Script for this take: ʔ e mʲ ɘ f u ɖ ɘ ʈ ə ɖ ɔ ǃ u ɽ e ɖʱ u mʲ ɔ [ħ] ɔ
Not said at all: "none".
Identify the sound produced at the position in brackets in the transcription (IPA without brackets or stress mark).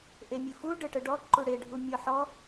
ħ